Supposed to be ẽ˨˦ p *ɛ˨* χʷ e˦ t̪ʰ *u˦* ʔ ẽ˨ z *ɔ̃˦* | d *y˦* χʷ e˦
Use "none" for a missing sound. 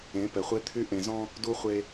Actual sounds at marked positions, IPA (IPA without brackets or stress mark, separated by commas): ɛ˨, y˦, ɔ̃˦, u˦